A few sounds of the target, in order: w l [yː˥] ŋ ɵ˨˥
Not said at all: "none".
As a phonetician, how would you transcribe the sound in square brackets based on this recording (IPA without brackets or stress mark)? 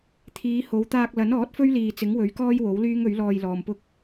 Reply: yː˥